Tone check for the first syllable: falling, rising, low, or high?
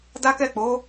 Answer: high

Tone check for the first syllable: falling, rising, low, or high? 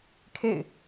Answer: falling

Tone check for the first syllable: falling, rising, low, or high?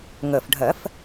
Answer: low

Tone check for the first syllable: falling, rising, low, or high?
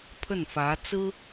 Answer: falling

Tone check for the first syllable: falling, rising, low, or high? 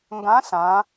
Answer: rising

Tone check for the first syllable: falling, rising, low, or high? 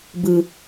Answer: low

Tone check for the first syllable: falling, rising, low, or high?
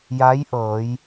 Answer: rising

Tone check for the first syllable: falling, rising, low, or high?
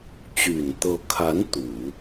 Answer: low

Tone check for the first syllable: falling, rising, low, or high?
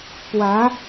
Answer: rising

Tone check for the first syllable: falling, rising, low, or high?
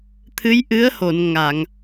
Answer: rising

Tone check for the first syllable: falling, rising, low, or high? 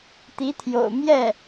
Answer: rising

